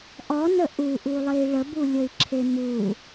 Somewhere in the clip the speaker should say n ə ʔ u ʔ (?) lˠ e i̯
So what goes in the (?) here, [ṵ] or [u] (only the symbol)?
u